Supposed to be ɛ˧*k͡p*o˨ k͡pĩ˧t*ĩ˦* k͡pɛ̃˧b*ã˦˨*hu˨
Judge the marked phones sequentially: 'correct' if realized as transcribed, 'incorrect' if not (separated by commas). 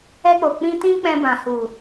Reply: correct, correct, incorrect